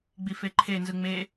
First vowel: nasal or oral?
oral